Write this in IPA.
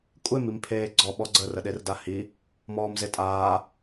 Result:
kʷʼ e m i m pʰ eː ɡ͡ǀ ɔ ɓ ɔ ɡ͡ǀ ə r ə ɗ e r d a h i | m ɔː m z e tʼ aː

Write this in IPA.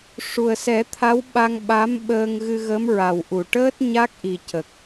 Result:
ʂ u˨˩ ə̯ s ɛ˨˩˦ t̪ʰ a˧˥ w ɓ a˧ ŋ ɓ a˧˥ m ɓ əː˧ ŋ ɣ ɨ˧ ɣ ə˧˥ m ɹ a˨˩ w ʔ u˨˩˨ ʈ əː˦˥ t̚ ɲ a˦˥ k̚ ʔ i˨˩ c ə˨˩ k̚

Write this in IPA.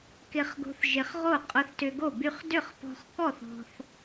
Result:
k ɪ˧ χ ɡ o̤˧ θ ʒ ɪ˧ χ ʁ o˥˩ qʼ ʊ˧ θ t ʏ˧ ɡ o˥˩ b y˧ χ d ʏ˥˩ χ p ɔ̤˧ χ k ɔ˥˩ θ ɔ̤˧ θ

